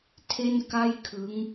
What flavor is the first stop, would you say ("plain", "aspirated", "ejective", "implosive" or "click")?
aspirated